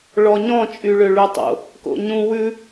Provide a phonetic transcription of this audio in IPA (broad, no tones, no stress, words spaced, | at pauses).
ɭɔɲɔ̃ t͡ʃʼyɭøɭytˤo̰ | ko̰ɲũ wʉ